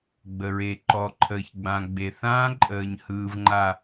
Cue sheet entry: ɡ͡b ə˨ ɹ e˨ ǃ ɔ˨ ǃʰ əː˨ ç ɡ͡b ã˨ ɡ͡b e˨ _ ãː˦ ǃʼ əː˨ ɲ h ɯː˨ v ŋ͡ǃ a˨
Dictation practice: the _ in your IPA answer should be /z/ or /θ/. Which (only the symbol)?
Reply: θ